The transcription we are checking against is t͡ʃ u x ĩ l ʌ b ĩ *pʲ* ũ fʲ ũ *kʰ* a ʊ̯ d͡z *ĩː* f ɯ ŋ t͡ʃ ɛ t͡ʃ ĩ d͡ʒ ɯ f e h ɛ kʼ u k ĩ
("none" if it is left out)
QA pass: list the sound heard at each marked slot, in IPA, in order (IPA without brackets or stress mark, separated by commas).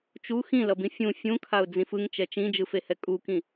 fʲ, kʰ, ĩ